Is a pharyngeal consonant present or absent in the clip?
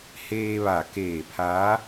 absent